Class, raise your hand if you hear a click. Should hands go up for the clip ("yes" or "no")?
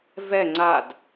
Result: yes